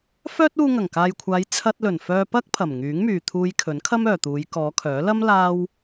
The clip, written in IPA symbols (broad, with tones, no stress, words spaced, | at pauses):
fœː˥t̚uː˧ ŋɐ˨˩ŋkaː˨jkʷʰaː˨˧j t͡sʰɐ˧t̚lɵ˨˩n fœː˧pɐ˥k̚ pʰɐ˨˩mŋyː˨˥ŋmyː˨ t̪ʰuː˧jkʰɵ˨˥nkʰɐ˥m œː˨t̪uː˨˧j kɔː˨˧kʰœː˨˥ lɐ˥m laː˥w